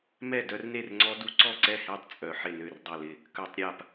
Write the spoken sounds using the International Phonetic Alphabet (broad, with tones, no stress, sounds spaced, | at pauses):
m ɛ˥˩ d œ˦˥ r n e˥˩ r ŋ͡ǀ ɔ˦˥ d u˦˥ ǀ ɔ˥˩ ǀ ɛ˥˩ h e˥˩ tˤ t͡sʼ œ˧˩˧ ħ ɪ˥˩ n ø˥˩ r dˤ ɛ˥˩ l ɪ˥˩ | k œ˧˩˧ tˤ ɾʲ a˥˩ p